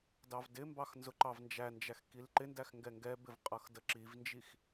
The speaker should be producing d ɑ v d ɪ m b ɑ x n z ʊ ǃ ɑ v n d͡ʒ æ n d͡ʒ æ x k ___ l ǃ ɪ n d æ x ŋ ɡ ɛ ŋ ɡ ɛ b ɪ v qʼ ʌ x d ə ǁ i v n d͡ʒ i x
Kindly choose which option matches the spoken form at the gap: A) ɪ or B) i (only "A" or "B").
B